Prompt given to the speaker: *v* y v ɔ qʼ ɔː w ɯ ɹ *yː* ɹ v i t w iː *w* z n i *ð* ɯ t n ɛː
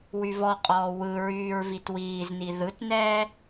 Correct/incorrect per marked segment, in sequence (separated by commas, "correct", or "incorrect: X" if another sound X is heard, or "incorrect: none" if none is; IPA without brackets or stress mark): incorrect: w, correct, incorrect: none, correct